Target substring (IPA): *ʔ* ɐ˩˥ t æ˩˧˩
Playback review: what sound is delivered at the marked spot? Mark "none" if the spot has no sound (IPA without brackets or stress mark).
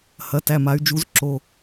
h